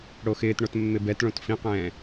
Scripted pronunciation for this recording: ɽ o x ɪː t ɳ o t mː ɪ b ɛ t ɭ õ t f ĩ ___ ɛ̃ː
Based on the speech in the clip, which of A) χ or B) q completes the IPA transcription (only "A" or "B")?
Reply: B